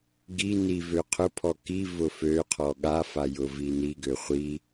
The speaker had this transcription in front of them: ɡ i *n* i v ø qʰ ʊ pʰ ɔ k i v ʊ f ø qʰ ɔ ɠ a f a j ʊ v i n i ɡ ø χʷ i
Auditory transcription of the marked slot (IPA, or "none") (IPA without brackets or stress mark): n